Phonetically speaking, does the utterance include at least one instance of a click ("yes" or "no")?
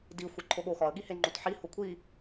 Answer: yes